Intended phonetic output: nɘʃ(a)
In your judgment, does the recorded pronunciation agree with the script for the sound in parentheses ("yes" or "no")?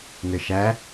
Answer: no